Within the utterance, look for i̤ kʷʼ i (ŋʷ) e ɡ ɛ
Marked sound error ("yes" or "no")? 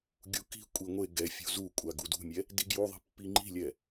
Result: no